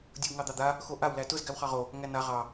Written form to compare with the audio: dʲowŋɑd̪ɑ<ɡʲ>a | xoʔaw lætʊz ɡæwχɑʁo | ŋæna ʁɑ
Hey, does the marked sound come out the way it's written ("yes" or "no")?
no